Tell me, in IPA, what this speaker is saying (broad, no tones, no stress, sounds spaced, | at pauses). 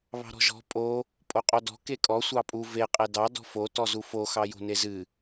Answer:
β ɑ̤ ɾ ɔ̤ ʒ ɔ̤ pʼ o | pʼ o qʼ o d ɔ̤ k e kʼ ɔ sʷ ɑ pʼ u v e qʼ e d ɑ d ɔ̤ f o t ɔ z u f o x ɑ j o̤ n e z ɨ